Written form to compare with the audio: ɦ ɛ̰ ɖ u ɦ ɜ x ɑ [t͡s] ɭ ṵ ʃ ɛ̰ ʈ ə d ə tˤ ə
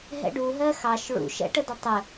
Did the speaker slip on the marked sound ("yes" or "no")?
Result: yes